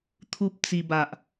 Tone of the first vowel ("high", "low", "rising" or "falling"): high